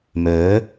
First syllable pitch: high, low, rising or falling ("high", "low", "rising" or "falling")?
rising